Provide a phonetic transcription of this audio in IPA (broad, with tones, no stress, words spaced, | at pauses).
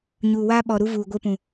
ɲuː˨waː˦ɓɔ˨ ɾu˦vuː˨ɡʷe˦pũ˨